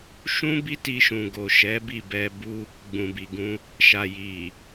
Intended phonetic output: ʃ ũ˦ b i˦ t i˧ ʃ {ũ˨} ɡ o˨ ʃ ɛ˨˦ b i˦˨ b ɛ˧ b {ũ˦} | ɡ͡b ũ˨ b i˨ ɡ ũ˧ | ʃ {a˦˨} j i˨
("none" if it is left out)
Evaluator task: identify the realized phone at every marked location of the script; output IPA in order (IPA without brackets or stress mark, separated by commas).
ũ˨, u˦, a˨